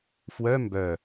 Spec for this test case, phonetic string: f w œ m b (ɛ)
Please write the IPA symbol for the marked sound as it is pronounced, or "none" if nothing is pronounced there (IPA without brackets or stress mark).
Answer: œ